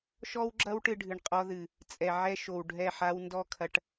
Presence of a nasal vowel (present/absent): absent